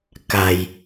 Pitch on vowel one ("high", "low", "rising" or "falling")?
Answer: low